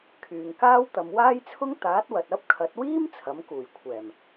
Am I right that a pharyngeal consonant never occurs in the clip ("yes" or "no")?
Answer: yes